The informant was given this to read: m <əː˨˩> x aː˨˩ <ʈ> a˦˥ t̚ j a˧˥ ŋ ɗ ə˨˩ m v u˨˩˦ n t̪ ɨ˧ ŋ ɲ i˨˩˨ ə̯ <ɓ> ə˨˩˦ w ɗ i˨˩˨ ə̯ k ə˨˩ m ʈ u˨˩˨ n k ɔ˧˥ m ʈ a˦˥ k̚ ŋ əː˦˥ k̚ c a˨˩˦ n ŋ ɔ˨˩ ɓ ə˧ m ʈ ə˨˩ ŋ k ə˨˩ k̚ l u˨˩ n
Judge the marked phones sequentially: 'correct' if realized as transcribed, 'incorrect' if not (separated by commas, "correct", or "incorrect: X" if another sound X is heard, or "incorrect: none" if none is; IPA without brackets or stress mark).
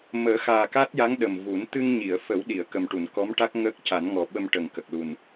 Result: incorrect: əː˨˩˦, incorrect: k, incorrect: f